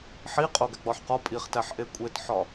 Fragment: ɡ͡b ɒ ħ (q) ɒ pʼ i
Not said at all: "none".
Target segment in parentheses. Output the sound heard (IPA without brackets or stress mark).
q